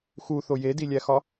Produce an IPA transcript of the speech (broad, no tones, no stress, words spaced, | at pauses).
xuθo jedilʲæxɒ